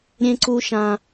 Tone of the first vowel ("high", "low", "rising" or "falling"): high